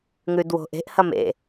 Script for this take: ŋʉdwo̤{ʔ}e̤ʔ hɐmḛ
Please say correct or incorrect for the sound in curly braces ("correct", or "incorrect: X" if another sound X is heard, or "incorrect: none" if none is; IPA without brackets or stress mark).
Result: correct